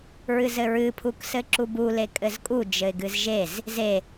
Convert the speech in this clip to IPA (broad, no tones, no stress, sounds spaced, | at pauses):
ɹ ɨ z ɘ ɹ ɨ pʰ u k s ɘ ǁ u b u l e kʼ ɘ z kʼ u d͡ʒ ɘ ɪ̯ ɡ ɨ z ʒ e z | z e